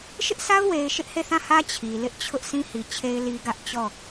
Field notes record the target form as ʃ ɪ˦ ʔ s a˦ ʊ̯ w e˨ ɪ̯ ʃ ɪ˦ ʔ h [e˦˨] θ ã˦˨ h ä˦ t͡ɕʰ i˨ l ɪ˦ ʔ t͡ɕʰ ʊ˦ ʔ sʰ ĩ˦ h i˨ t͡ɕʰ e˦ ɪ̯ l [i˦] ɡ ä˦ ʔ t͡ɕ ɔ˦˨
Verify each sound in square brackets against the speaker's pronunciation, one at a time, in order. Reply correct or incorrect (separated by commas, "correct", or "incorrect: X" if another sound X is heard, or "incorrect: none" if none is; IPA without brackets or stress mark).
correct, correct